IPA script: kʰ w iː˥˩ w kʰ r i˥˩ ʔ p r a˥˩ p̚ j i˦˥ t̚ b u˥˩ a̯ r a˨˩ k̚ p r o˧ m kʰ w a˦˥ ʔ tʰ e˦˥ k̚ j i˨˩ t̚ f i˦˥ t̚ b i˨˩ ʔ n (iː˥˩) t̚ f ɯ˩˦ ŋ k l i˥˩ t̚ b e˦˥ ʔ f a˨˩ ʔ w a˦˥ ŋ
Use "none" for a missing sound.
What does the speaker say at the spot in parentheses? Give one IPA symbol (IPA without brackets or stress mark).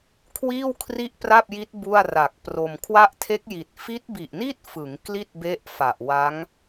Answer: i˥˩